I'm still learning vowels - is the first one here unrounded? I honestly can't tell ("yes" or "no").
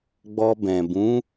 no